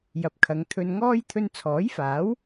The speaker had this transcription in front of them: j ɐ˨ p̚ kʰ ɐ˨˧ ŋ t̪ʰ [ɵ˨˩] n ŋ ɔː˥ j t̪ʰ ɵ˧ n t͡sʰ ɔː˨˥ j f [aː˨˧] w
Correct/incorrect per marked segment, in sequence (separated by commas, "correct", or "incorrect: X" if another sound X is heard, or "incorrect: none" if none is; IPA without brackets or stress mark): incorrect: ɵ˧, incorrect: aː˨˥